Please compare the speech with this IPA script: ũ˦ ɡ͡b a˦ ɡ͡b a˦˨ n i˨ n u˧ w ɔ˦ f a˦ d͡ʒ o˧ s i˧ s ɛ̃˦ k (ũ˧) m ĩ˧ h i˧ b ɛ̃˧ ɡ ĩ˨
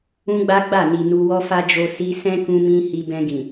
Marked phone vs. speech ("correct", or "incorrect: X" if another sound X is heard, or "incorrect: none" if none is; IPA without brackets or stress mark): correct